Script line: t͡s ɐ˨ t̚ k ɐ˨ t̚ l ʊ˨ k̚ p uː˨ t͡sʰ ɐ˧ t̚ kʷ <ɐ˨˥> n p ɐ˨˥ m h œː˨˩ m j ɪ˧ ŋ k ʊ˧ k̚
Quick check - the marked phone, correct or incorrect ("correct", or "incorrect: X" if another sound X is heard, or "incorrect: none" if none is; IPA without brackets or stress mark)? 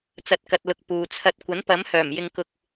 correct